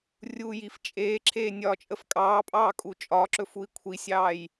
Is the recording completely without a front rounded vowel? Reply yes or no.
yes